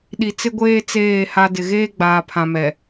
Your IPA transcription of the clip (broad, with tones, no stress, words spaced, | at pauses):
ɗi˨t͡sɪ˦ɡʷeː˦ t͡seː˦˨ha˦ dɪ˨ɣeː˦ɡ͡baː˨pʰã˨ mɛ˨